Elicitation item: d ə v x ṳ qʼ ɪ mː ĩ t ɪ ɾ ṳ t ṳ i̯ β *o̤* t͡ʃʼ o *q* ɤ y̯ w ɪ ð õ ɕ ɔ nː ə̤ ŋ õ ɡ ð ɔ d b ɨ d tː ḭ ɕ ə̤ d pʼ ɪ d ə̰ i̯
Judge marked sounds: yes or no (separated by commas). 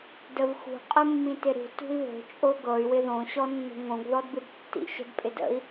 yes, no